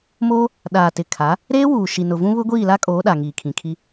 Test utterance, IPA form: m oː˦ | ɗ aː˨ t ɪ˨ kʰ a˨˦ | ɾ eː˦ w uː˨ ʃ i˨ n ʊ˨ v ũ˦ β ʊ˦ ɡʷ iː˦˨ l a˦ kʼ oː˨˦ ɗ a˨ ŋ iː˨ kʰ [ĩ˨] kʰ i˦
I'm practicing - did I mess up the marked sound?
no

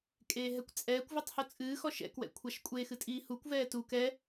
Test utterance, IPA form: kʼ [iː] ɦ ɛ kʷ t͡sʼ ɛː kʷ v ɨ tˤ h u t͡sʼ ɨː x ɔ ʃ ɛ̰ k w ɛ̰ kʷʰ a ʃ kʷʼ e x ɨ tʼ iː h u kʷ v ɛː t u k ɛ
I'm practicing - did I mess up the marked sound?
yes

